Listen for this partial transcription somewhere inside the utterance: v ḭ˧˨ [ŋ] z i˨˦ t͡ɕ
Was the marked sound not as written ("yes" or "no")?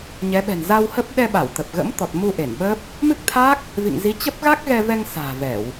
no